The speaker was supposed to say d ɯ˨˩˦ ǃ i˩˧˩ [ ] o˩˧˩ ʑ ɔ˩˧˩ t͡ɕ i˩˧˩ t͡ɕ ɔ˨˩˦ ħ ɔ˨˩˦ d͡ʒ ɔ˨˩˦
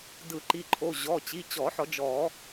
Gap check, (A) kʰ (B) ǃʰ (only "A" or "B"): B